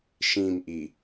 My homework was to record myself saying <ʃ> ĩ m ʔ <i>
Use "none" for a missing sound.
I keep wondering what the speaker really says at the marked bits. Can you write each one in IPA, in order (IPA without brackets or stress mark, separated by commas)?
ʃ, i